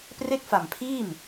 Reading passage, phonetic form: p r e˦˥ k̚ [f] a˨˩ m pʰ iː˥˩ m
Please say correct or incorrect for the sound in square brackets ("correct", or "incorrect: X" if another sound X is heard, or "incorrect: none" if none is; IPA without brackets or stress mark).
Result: correct